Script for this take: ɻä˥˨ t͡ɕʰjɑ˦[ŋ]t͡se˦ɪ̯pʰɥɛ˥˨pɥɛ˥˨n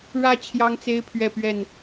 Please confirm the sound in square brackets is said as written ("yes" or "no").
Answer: yes